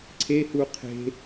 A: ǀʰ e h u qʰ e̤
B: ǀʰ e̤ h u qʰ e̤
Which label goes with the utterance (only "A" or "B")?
A